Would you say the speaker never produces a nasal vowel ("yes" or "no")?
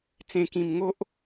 no